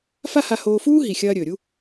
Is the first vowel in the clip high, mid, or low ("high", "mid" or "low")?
low